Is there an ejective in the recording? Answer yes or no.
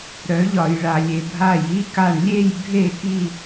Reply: no